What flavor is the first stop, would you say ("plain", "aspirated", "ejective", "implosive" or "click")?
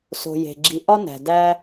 click